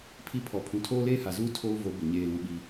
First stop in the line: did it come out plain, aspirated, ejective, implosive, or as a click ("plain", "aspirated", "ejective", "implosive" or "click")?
aspirated